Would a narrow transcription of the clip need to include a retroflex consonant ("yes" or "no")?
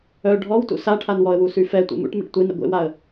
yes